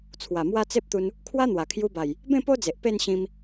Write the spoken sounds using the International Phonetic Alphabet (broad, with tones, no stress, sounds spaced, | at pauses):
t͡sʰ w a˨˩ m w a˦ t͡s e˦ p̚ t̪ u˧ n | kʰ w a˦ n̪ w a˨˩ kʰ j u˧ b a˨˩ j | b ẽ˥˧ p o˦ d͡z e˨ ʔ p e˥˧ n ɕ ĩ˧ m